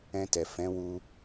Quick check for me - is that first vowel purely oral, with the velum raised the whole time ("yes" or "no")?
no